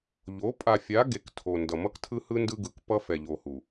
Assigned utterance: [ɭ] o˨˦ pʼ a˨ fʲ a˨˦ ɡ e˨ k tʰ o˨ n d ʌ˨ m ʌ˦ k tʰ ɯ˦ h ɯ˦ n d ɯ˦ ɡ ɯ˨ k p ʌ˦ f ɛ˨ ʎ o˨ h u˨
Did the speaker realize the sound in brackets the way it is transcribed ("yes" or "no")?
no